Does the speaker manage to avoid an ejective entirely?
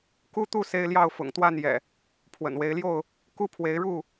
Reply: yes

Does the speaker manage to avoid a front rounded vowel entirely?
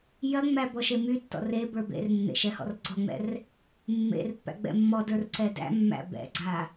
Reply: no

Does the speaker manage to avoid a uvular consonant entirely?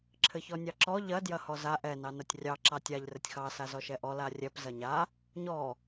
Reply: yes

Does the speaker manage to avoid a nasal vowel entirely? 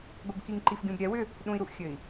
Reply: no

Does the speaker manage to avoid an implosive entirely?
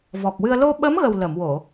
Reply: no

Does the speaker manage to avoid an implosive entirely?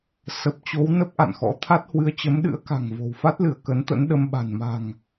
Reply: no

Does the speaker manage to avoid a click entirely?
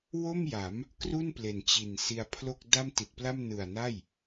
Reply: yes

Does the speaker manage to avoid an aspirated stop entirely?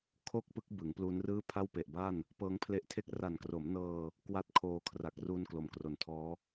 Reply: no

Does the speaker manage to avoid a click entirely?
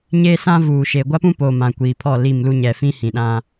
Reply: yes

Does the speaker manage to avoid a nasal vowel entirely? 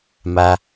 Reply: yes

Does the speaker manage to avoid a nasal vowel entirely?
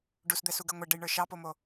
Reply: yes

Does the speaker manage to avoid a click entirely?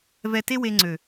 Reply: no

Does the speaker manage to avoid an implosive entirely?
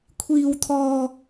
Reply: yes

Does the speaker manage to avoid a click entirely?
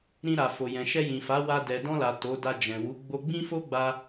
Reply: yes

